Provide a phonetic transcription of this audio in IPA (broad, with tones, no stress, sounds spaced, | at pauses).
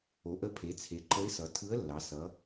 o˩˧ ʔ ə˧˥ pʰ e˩˧ t͡sʰ e˩˧ ǃ ə˧˥ ɪ̯ s ʌ˩˧ tʰ ɯ˧˥ ə̯ lː ɑ˩˧ s ʌ˩˧